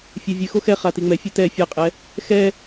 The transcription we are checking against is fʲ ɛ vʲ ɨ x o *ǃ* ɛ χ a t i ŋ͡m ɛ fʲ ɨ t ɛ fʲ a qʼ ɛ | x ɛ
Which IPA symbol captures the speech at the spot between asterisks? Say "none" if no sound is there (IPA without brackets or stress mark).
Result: x